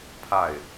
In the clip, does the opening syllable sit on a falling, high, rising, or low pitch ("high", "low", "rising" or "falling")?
falling